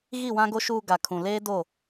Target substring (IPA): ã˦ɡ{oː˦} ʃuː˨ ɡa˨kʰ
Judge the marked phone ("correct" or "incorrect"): incorrect